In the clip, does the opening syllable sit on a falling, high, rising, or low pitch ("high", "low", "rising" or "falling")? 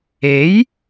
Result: rising